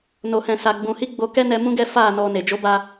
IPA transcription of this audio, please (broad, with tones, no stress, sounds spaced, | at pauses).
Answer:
n o˧ h ɛ̃˧ s a˧ ɡ͡b ũ˧ h i˦ ɡ͡b o˧ k ɛ˦ n ɛ˧ m ũ˦ ɡ ɛ˦ f a˦˨ n ɔ˧ n e˨ d͡ʒ o˨˦ b a˧